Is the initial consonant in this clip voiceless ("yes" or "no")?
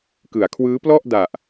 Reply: yes